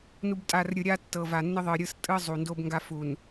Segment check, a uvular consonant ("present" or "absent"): absent